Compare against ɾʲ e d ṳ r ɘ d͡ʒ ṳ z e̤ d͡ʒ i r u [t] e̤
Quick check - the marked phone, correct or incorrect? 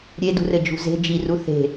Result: incorrect